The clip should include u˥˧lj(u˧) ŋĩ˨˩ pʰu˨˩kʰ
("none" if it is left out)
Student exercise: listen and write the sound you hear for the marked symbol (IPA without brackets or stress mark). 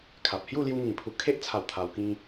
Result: u˧